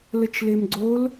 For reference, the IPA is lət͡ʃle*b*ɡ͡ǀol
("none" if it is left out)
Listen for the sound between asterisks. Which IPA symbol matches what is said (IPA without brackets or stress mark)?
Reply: m